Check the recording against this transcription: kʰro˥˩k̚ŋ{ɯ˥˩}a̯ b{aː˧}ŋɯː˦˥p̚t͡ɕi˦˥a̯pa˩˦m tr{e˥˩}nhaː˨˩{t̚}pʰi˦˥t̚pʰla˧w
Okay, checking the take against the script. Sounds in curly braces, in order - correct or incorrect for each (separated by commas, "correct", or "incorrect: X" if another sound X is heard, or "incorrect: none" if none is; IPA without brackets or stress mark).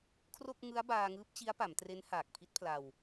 incorrect: ɯ˦˥, correct, incorrect: e˦˥, incorrect: k̚